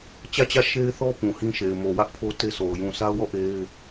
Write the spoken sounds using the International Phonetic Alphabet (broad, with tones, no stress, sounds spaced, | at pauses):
t͡ɕ ä˦˨ t͡ɕ ä˦˨ ʃ e˦ ɪ̯ θ ɔ˦ p ũ˨ h ĩ˦ ʃ e˨ ɪ̯ m o˨ w ä˦ ʔ pʰ o˦ t e˦ s o˨ ʊ̯ j ũ˨ s a˦ ʊ̯ w ɔ˦˨ ʔ e˦ ɪ̯